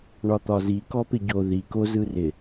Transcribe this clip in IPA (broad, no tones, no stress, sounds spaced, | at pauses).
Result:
ɳ ɒ t̪ ɒ z i k ɔ p ɪ ɟ o ð i k o z ɯ r ɪ